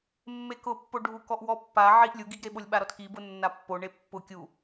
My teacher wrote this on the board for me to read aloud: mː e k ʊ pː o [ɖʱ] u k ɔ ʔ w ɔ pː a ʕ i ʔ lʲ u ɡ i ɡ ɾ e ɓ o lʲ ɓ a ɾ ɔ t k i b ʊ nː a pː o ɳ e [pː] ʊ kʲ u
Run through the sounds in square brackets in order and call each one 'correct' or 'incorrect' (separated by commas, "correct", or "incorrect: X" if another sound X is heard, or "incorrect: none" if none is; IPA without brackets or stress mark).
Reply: correct, correct